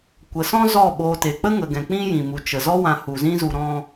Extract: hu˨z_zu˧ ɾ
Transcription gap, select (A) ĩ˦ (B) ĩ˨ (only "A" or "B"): A